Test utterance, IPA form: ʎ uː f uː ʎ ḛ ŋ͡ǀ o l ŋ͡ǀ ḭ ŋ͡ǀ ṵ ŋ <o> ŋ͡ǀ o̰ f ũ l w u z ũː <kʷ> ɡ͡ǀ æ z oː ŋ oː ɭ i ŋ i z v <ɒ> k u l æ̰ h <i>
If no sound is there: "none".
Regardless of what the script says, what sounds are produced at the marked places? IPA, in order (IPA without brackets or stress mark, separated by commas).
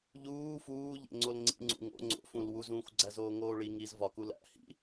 o̰, xʷ, ɒ, ḭ